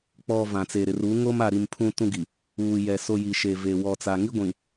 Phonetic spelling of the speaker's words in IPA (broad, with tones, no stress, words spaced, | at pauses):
k͡pɔ˨ vã˨t͡se˨ɾɪ˨r u˨˦ŋoː˦ma˨ɾi˨m pʰũ˦tũ˦ ɡi˨ | uː˨jɛ˨ so˨ ji˨ʃe˨ ve˨wɔ˨t͡sa˨ ŋi˦ɡʷĩ˨